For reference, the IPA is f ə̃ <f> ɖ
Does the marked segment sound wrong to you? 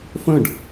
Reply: yes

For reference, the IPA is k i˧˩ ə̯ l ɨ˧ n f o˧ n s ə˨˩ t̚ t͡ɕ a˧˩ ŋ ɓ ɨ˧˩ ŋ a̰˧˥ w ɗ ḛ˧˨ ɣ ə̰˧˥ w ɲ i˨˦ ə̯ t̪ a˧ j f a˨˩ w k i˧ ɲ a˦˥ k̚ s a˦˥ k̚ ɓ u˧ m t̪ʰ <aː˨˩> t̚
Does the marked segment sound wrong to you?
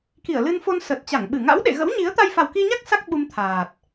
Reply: no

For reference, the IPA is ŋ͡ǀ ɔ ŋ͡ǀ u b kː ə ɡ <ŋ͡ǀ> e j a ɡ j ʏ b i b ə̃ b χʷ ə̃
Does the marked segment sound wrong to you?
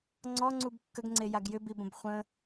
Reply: no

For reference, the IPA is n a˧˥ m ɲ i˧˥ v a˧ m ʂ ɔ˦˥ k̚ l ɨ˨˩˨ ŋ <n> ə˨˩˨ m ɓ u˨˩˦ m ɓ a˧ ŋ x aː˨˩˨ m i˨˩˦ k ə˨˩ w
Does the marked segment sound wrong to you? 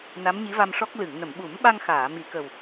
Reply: no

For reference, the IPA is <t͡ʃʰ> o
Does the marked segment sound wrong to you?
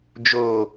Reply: yes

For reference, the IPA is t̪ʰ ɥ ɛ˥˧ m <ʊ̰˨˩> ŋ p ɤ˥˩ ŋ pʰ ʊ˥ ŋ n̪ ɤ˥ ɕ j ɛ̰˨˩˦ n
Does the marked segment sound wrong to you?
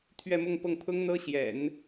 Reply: yes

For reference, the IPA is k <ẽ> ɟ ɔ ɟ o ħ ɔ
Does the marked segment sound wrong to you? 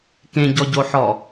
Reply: no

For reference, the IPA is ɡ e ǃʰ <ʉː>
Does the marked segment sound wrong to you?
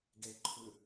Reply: yes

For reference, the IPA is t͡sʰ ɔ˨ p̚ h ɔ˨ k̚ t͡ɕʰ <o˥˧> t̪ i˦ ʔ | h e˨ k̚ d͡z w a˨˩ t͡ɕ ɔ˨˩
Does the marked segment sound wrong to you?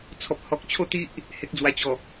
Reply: no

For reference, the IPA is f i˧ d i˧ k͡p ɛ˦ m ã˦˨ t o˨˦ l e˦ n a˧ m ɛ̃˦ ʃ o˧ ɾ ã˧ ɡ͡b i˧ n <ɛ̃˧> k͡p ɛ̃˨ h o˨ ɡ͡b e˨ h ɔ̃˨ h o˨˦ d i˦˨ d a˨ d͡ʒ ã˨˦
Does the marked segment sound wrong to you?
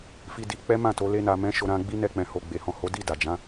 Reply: yes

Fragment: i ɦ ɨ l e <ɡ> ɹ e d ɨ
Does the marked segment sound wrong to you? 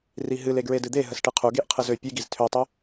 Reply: no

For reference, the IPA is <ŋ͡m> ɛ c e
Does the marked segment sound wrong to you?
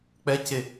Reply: yes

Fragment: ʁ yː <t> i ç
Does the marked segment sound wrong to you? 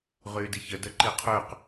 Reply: yes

